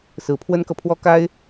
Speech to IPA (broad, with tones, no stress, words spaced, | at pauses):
sɹ̩˧˥pʰwə˥nkɤ˨pʰwɔ˥ ka˥ɪ̯